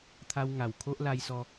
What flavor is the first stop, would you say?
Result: aspirated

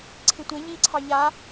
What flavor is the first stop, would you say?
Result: click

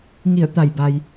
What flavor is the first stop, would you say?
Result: plain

